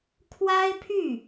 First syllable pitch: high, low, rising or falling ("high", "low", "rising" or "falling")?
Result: high